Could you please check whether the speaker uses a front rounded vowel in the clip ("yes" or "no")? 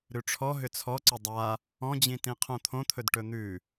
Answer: yes